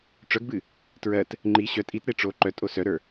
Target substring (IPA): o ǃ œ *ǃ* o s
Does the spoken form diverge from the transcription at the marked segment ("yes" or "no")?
yes